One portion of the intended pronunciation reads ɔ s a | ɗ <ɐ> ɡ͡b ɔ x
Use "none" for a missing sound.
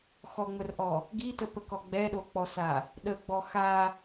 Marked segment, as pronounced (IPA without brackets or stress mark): ə